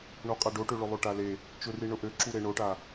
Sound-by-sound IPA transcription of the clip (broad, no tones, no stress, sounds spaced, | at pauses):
ɳ o qʼ a ɖ o ʈ ø ɭ ʊ lˠ o ʈ a l e | t͡ʃ ʊ r i ɳ ʊ ʔ ø ǁ u ɾ e ɳ o ʈ a